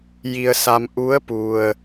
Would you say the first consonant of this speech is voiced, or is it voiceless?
voiced